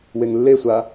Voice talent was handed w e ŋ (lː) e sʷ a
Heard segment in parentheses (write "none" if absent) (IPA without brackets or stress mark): lː